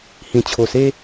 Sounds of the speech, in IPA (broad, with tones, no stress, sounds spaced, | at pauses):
h ĩ˨˩ t͡ɕʰ o˨˩ s e˦